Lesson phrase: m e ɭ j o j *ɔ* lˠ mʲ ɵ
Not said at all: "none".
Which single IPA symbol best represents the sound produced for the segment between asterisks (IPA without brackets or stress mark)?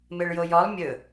ɔ